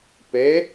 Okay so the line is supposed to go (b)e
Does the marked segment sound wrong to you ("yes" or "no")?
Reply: yes